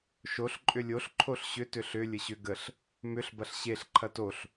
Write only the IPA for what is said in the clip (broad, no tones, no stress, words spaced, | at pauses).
ʃoɬ ǃʼʏlʲoɬ ǃʰoɬɕʏ tʏɬʏ lʲəɕʏ ɡəɬ | mʏɬ bɐɬɕeɬ ǃʰɐtoɬ